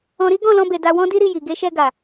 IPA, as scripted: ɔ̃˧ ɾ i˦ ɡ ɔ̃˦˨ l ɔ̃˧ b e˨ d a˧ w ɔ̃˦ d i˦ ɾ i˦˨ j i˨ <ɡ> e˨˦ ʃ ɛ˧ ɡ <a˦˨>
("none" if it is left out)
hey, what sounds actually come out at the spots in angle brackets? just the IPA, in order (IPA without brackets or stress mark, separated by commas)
ɡ, a˨